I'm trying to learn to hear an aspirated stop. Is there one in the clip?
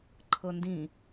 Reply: yes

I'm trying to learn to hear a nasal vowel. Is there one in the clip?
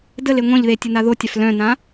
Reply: yes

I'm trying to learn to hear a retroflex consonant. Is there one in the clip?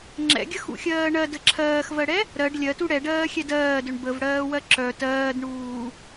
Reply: yes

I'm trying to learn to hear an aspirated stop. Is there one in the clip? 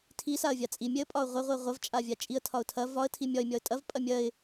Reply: yes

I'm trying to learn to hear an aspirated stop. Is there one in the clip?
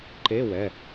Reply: no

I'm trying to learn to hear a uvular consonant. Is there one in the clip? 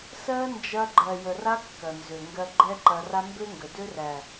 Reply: no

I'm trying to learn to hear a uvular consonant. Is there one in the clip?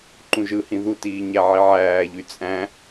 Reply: no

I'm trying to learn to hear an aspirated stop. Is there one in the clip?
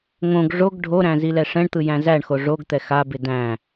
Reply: no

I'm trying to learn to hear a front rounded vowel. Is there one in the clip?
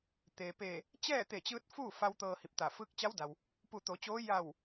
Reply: no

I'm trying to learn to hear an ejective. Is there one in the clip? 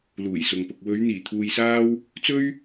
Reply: no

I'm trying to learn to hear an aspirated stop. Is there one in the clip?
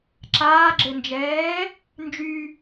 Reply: no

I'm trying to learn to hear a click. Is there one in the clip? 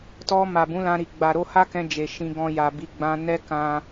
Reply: no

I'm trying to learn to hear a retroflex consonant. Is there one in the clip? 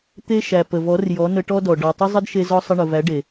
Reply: yes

